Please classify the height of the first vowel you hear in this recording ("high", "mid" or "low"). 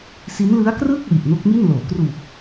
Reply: high